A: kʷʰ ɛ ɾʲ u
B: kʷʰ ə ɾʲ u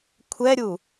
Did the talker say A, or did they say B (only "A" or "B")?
A